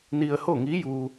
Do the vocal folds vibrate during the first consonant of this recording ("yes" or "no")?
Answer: yes